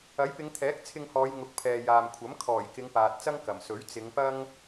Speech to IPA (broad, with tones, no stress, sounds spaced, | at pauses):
ɐ˨˥ j p ɪ˨˧ ŋ t̪ʰ ɛː˨˥ k̚ t͡sʰ ɪ˧ ŋ h ɔː˨˧ j ŋ ʊ˨˥ k̚ pʰ ɛː˨ j aː˨ m kʷʰ ɐ˨˥ m kʰ ɔː˨˩ j k ɪ˨˧ ŋ p aː˨ t̚ t͡s ɐ˥ ŋ k ɐ˨˩ m s ɵ˨˥ ɥ t͡s ɪ˨˧ ŋ p ɐ˥ ŋ